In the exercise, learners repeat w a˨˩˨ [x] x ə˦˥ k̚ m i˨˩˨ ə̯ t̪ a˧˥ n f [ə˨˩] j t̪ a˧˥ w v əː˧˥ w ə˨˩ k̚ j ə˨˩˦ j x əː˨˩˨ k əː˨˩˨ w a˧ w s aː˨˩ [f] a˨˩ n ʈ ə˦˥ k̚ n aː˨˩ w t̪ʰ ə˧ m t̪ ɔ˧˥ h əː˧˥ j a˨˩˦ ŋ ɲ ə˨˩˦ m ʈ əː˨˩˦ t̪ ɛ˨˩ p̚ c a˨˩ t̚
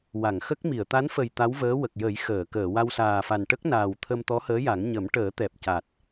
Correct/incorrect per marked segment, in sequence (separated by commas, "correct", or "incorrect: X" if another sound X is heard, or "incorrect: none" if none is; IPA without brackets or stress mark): incorrect: ŋ, correct, correct